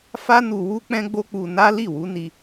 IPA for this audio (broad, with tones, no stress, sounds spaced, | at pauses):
f a˦ n u˧ w u˦ k͡p ɛ̃˦ ɡ͡b o˦ k͡p u˧ n a˦ l i˦˨ w u˨˦ n i˧